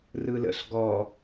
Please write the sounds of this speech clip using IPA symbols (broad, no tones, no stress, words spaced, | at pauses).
rɯlə̰ɬ ɡɔ